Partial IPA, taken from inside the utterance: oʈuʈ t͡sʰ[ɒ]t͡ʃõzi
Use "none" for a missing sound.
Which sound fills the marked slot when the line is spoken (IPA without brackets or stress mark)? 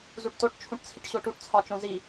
ɒ